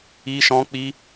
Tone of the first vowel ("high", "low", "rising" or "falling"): high